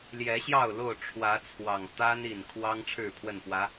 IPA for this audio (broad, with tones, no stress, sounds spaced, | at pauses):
l j ɛ˨˦ ɕ j ɑ˥˨ ʊ̯ l o˥˨ ʊ̯ ʈ͡ʂʰ w ä˨˦ t͡sʰ w ɑ˨˩ ŋ t̪ a˦ n i˨˩ n kʰ w ɑ˦ ŋ ʈ͡ʂʰ ɻ̩˥˨ pʰ w ə˥˨ n p w ä˨˦